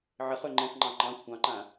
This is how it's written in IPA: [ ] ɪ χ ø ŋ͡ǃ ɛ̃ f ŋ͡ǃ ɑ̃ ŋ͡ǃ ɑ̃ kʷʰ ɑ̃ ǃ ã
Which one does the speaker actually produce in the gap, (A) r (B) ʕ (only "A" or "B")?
B